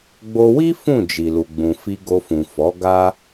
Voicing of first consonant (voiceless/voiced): voiced